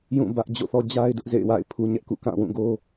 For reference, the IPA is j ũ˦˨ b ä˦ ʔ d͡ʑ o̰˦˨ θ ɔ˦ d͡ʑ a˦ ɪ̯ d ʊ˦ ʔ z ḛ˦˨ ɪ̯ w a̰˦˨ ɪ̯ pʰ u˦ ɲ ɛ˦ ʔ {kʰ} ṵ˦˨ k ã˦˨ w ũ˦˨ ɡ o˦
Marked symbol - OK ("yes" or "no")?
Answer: no